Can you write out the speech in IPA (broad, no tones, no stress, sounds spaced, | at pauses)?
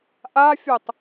ʔ a fʲ o tˤ